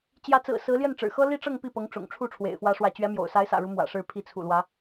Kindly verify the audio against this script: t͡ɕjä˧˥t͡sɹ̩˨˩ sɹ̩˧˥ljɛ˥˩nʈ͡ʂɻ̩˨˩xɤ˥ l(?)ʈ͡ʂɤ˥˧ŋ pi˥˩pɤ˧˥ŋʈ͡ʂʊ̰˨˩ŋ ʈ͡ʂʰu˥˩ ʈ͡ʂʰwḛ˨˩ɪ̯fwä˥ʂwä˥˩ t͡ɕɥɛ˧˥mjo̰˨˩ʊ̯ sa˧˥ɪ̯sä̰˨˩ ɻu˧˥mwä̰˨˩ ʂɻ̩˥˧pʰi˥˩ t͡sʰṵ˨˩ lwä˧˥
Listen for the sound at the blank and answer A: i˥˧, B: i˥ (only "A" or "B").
A